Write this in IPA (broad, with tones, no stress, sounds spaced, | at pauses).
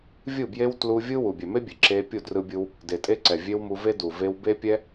vʲ ɯ˦˨ b j e˦ w t l u˦ vʲ ɯ˦ w u˨ bʲ ɛ˨ m e˦ bʲ e˨ ǁ e˧ pʲ u˦˨ d r ɯ˧ bʲ ɯ˧ w | d e˨ tʼ e˧ ǀ ɛ˨ vʲ e˦ w m u˧ v e˦ d u˨ v e˧ w b e˦ pʲ ɛ˦